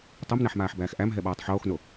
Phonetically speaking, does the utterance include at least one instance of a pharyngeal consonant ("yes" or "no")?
yes